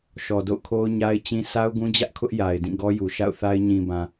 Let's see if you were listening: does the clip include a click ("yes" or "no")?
no